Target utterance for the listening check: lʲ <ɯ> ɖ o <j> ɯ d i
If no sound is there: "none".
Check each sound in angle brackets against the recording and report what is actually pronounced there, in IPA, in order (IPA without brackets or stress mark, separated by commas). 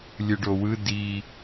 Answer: ɯ, w